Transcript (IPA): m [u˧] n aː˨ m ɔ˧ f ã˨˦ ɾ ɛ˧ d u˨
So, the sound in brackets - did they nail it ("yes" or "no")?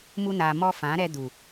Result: yes